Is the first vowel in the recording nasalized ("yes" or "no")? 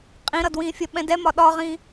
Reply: yes